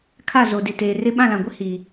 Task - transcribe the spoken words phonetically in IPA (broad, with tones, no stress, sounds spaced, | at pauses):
kʰ a˦˨ z o˨ d ɪ˨ t eː˨ r ɪ˦ ɓ ã˦˨ l ã˨ ɡʷ ɪ˦ h i˨